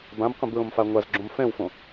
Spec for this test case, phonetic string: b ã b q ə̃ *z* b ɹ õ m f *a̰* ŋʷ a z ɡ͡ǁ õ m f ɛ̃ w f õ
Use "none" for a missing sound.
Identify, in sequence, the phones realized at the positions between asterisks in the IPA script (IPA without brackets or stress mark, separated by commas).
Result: none, a